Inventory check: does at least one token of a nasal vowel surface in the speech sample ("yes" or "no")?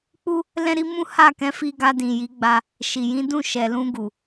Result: yes